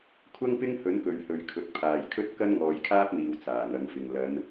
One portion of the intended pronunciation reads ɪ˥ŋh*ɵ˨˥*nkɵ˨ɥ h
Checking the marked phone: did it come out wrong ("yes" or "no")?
no